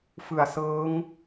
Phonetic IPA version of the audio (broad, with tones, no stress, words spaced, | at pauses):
fɯ˨˩a̯sɤː˦˥ŋ